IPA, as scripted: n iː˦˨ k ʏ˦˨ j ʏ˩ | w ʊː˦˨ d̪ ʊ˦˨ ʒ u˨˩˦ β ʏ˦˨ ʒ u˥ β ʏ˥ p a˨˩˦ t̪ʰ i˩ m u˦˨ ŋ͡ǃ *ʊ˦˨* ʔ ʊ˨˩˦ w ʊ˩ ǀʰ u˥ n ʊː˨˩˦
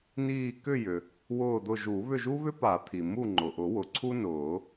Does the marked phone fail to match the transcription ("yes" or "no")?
yes